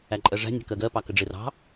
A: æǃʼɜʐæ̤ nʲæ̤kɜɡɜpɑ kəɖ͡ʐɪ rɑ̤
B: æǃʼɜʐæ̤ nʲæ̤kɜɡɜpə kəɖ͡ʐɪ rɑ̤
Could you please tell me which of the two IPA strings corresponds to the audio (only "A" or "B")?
A